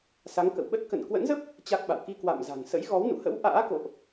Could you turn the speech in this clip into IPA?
s a˨˦ ŋ k ə̰˧˨ w ɓ ə˦˥ t̚ k ə̰˧˨ n k w ə̰˧˥ n z ə˦˥ p̚ | t͡ɕ a˦˥ k̚ ɓ a̰˧˨ w k i˧ k w a̰˧˨ m z a̤˨˩ ŋ s ə̰˧˥ j ɣ ɔ˨˦ w n ṵ˧˨ h ə̰˧˥ w ʔ a̰ː˧˥ k o̰˧˨ ʔ

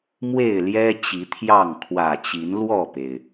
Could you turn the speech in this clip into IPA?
m w e˥˨ ɪ̯ l j ɛ˦ t͡ɕ i˨˦ t̪ʰ j ɑ˥˨ ŋ kʰ w ä˨˩ t͡ɕ i˨˦ n l w ɔ˥˨ p e˩ ɪ̯

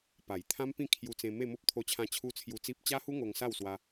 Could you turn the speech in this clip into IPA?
p a˨˩ j t̪ʰ ã˦ m p ĩ˥˧ kʰ j u˧ t͡s ẽ˧ m e˥˧ m o˦ p̚ t̪ʰ o˧ t͡ɕʰ ã˧ t͡ɕʰ u˦ t͡sʰ j u˧ t͡s i˦ p̚ t͡ɕ a˦ h u˦ ŋ o˧ ŋ s a˥˧ w s w a˧

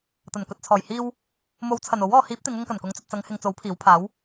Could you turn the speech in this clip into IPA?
t̪ ɐ˨˩ n k ɵ˨ t̚ t͡sʰ ɔː˨˩ j h iː˧ w | m o˨˧ w t͡sʰ ɐ˨˩ n o˨˥ w ɔː˨˧ h iː˨˥ p̚ t̪ ɪ˨˧ ŋ ʊ˧ ŋ k ɐ˨˩ n k ʊ˨˥ ŋ t͡s ɵ˨ t̚ t͡s ɐ˨˧ ŋ h ɪ˨ ŋ t͡s o˨˥ w pʰ iː˨˥ w pʰ aː˨˥ w

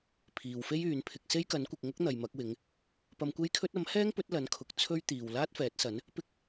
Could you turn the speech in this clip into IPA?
pʰ iː˨ w f e˥ j yː˨˧ n pʰ ɪ˧ k̚ s e˥ j k ɐ˨˥ n kʷ ɪ˨ k̚ ŋ ʊ˥ k̚ n̪ ɐ˨ j m ɐ˨˥ k̚ w ɪ˨˥ ŋ | p ɐ˧ m kʷ e˥ j kʰ ɵ˥ t̚ ɐ˨˥ m h ɛː˥ ŋ p ɵ˨˥ t̚ l ɐ˨˥ n kʰ ʊ˨ k̚ t͡sʰ ɵ˥ ɥ t̪ iː˨ w l aː˥ t̚ f ɛː˨˥ t̚ s ɐ˨˥ n | p ɪ˥ k̚

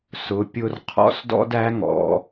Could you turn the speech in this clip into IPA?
s ʊ˩˧˩ pʲ ʊ˦˨ r qʰ ɔ̰˥ s d ɔ̰˥ d æ˧˥ ŋ ɔ̰˩˧

